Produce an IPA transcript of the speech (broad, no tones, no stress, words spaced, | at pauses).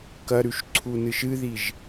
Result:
kɐɾʉʃǀʰunɨʃ ɨðiʒ